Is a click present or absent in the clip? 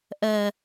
absent